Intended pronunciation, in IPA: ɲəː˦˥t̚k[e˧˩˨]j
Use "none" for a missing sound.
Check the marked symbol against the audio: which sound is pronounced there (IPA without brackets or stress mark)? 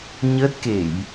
e˧˩˨